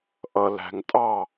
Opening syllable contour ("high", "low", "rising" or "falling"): low